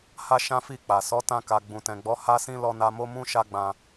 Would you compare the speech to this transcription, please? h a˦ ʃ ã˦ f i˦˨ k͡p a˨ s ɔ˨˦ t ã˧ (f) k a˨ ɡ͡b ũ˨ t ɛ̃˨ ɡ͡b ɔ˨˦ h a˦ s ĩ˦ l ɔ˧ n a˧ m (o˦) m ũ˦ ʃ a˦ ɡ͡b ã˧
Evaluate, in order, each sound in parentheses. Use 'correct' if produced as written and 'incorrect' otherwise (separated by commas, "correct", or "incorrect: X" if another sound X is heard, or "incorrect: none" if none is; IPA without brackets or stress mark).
incorrect: none, correct